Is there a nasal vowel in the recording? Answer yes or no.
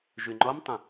yes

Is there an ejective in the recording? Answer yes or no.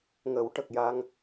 no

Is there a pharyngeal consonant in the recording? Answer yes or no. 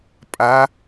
no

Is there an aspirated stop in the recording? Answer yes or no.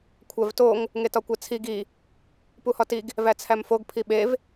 yes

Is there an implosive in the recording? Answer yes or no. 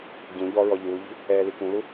no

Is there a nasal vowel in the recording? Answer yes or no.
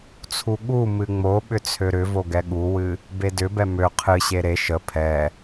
no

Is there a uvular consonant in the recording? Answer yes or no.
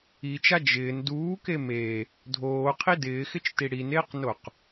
yes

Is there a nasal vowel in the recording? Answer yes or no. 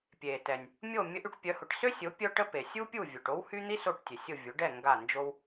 no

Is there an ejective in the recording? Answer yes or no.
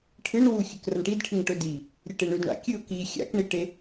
no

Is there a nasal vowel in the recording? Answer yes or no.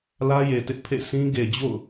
yes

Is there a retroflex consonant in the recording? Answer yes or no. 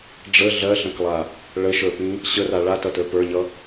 yes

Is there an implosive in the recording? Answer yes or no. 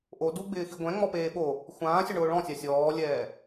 yes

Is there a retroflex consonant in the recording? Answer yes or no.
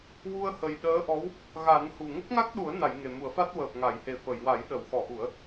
no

